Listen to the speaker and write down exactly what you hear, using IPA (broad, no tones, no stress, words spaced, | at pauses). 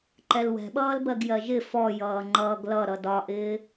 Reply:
ǃɛlwɛ̤ɓʌːlbɜɡ jɜʒɪ fɔ jʌːŋ͡ǃʌːɡlʌ ɾʌdɒʔɪː